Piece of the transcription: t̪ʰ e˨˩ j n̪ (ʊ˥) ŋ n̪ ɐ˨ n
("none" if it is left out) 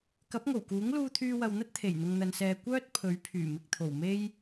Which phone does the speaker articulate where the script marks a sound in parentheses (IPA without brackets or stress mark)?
ʊ˨